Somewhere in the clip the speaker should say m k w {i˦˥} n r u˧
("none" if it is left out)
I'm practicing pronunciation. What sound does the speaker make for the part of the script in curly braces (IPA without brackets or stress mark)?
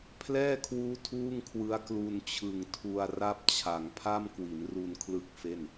i˩˦